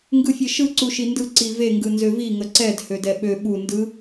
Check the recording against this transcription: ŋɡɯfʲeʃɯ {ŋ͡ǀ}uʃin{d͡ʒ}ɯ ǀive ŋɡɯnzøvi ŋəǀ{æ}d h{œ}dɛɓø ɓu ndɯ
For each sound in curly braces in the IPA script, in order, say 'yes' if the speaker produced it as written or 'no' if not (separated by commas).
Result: no, no, no, no